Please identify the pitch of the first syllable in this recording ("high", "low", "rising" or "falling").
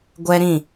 high